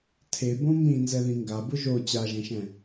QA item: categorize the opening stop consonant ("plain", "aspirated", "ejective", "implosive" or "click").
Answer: aspirated